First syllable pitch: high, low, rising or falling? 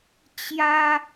high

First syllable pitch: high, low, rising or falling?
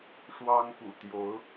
high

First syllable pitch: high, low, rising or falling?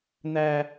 high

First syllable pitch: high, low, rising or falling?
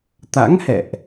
rising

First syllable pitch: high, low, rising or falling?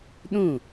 falling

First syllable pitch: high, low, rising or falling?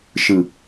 low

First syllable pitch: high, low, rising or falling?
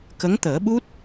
rising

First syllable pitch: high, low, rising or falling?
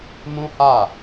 high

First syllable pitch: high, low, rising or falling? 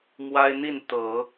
high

